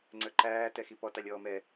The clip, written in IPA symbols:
ŋ͡ǀ ə˞ ǃ æː t ɛ x i p ɔ t ɑ lʲ ɔː m ɛ

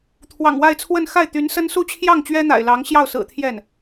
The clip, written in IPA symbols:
t̪ʰ w ɑ̰˨˩ ŋ w a˥˧ ɪ̯ t͡sʰ w ə˥˧ n x a˥˩ ɪ̯ t̪ y˧˥ n s ə˥ n s u˥˧ t͡ɕʰ j ɑ˥˩ ŋ t͡ɕ ɥ ɛ˥ n̪ a̰˨˩ ɪ̯ l ɑ˧˥ ŋ ɕ j ɑ˥˩ ʊ̯ s ɹ̩˨˩ t̪ʰ j ɛ˥˩ n

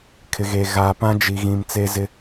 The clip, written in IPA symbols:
kʰ ɪ˨ ɣ eː˨ ɣ aː˨ p ã˦ d͡ʒ i˨ ɣ ĩ˨ m t͡s e˦ z ɪ˦

